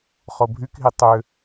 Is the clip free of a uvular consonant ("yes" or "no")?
no